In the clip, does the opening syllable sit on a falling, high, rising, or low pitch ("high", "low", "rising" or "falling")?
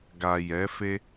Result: low